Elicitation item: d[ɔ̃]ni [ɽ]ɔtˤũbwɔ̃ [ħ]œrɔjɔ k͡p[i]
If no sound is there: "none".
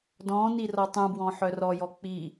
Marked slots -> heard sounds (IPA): ɔ̃, r, ħ, i

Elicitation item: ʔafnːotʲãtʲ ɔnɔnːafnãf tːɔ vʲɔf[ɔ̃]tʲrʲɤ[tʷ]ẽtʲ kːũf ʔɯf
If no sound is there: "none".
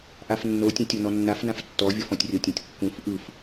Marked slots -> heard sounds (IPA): ɔ̃, tʲ

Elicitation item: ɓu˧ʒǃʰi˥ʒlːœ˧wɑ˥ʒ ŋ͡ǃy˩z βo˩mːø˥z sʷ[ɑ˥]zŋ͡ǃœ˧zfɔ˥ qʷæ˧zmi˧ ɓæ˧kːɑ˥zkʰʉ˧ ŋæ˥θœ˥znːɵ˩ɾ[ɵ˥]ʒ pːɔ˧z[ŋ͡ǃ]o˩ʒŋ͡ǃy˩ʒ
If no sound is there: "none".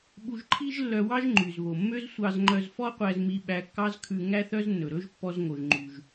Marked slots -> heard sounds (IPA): ɑ˧, ɵ˥, ŋ

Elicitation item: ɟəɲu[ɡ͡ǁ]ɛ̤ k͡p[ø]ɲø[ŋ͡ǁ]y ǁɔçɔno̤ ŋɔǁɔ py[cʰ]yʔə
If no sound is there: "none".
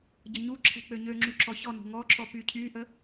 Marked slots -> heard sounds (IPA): ǁʰ, ø, ŋ͡ǁ, cʰ

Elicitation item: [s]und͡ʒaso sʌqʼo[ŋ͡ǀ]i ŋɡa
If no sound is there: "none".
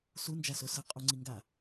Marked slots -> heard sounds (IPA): s, ŋ͡ǀ

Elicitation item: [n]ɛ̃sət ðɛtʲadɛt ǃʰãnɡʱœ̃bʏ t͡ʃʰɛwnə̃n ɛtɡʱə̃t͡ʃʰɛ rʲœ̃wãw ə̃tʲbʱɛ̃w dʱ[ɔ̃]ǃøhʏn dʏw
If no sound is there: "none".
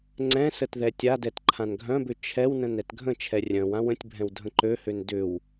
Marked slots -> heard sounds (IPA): ŋ͡ǀ, ə̃

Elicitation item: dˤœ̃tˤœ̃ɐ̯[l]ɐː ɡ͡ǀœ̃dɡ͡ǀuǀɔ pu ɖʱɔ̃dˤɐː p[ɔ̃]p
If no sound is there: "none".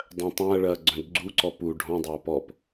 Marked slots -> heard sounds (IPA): ɭ, ɔ

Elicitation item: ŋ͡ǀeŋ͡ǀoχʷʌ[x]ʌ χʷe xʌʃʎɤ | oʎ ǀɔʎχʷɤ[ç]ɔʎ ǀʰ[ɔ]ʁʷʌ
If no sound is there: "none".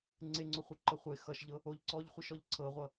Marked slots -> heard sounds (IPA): ǃ, ʃ, ɤ

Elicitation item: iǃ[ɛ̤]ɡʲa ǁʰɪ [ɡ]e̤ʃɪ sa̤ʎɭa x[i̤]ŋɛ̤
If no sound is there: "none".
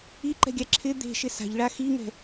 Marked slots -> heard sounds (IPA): ɛ̤, d̪, i

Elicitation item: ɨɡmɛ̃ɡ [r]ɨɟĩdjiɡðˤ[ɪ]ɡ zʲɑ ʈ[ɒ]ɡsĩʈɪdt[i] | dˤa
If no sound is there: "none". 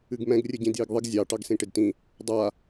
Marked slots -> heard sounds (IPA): rʲ, ɪ, ɑ, ĩ

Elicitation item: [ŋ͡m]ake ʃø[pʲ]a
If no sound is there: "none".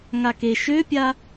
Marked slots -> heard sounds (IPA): ŋ, pʲ

